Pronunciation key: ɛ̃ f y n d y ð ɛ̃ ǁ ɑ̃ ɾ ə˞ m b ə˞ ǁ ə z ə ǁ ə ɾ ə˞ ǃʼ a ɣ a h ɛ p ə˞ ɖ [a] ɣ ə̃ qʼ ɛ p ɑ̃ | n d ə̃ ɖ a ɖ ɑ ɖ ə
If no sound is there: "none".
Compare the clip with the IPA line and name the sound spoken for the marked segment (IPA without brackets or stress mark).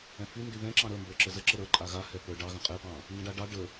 ɑ